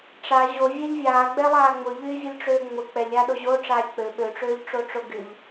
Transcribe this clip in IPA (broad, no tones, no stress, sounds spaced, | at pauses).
ʈ͡ʂ a ʑ o vʲ ɛ ʎ vʲ aː ɡ͡b ɛ lˠ aː ŋ͡m ʊ ʎ yː vʲ ʊ lʲ ʈ͡ʂ øː ŋ͡m ʊ k͡p ɛ lʲ aː ɗ o ʑ o ʈ͡ʂ aː lʲ k͡p ø ɓ ø ʈ͡ʂ øː ʎ ʈ͡ʂ o ʈ͡ʂ o ɡ y ʎ